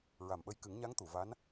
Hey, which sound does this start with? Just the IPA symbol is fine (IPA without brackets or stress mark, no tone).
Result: ɹ